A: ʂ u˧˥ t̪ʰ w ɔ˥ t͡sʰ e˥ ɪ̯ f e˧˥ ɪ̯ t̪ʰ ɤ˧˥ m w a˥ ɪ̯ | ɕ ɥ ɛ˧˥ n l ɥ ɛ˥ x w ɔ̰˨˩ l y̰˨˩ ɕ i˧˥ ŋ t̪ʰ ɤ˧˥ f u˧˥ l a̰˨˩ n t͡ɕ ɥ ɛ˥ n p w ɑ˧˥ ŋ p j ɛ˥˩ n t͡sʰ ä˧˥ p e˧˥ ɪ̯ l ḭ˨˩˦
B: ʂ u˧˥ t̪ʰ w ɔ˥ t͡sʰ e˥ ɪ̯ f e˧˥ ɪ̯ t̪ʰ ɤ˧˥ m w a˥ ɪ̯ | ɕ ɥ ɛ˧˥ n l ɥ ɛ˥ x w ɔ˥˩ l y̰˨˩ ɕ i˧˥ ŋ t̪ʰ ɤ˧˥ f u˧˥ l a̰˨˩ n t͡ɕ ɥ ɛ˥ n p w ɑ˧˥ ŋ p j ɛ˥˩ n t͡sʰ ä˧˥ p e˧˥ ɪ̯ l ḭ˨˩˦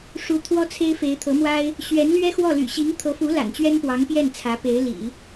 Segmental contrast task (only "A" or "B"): B